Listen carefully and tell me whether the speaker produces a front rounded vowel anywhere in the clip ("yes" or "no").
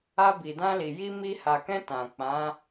no